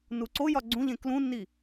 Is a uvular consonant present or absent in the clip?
absent